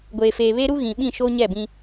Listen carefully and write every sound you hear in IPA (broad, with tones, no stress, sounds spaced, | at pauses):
ɡʷ eː˨ f eː˨ β e˦ ɾ u˦ ɣ ĩ˨ ɓ ĩ˦˨ ʃ oː˦ ɲ ɛ˦˨ b ĩ˦